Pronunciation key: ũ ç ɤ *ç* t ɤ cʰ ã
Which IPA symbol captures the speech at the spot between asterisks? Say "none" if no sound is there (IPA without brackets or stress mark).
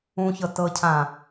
none